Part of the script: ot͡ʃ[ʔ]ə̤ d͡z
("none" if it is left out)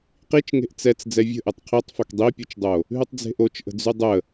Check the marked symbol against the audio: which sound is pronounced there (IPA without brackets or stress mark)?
ʔ